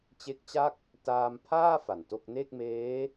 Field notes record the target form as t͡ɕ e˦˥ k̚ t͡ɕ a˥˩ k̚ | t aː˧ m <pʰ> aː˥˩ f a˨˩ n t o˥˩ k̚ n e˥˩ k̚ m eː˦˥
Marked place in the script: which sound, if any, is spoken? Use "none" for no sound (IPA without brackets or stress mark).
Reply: pʰ